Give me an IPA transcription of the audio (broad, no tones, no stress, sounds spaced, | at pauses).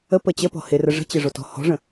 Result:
ə p ə t͡ɕ ə p ɔ̤ h ɪ r ə ʐ ə̤ t͡ɕ ɪ ʐ o t ɔ̤ h ɔ̤ ʐ ə̃